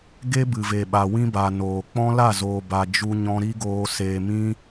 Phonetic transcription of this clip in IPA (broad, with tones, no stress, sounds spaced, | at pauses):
ɡ e˦ b ɨ˨ v e˨ ɓ a˨ w ĩ˦ b a˨ n oː˨ k͡p ɔ̃˦ l a˦˨ z oː˨ b a˨ d͡ʒ u˧ ɲ ɔ̃˧ ɾ i˦ ɡ oː˧ s eː˨ m ĩ˧